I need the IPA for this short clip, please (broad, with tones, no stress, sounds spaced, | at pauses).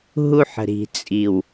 ɦ u˦ ħ ə̤˨ ɾ i̤˨ t͡sʼ i˨ w